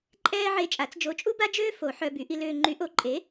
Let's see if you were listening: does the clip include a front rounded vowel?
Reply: yes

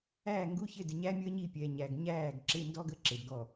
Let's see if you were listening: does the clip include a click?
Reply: yes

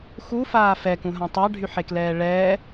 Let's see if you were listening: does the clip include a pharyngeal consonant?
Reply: yes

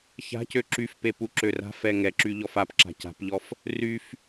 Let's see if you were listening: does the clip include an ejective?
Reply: no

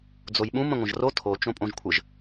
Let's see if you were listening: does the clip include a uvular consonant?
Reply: no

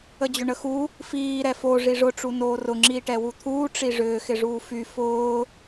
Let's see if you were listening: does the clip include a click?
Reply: yes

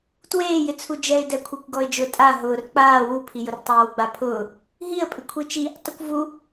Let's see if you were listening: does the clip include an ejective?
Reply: yes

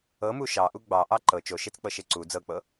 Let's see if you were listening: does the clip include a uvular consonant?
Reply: no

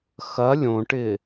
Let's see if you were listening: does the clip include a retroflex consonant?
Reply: yes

